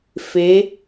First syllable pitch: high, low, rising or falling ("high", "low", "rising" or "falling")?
rising